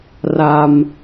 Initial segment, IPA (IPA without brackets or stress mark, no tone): r